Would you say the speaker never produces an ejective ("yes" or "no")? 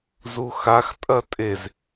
no